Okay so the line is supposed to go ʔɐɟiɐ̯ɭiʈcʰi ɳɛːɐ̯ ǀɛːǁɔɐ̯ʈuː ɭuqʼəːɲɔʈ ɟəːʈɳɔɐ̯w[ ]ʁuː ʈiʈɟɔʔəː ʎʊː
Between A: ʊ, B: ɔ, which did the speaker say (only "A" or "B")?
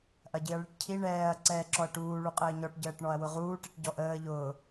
A